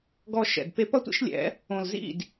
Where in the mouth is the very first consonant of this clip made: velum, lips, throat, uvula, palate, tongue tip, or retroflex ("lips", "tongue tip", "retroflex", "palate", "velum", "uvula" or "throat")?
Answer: velum